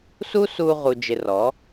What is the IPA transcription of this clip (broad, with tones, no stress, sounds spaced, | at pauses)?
s u˦ s uː˧ ʁ u˧ d͡ʒ ɪ˧ r ɔ˨˦